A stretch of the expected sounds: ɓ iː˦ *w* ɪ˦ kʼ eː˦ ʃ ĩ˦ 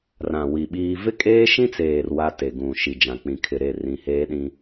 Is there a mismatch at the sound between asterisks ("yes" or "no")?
yes